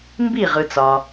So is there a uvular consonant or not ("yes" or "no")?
yes